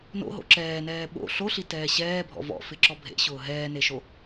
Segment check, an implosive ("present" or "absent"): present